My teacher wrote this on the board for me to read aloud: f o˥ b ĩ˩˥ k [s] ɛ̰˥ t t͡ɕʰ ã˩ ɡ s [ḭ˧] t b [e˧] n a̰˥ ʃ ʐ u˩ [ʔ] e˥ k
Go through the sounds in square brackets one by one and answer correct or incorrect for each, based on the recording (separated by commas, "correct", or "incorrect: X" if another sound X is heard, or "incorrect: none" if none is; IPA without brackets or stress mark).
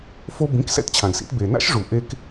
correct, correct, incorrect: e˩, correct